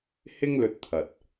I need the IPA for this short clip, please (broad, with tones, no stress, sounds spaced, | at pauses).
h ɪ˥ ŋ l ɵ˧ t̚ t̪ʰ ɐ˨ t̚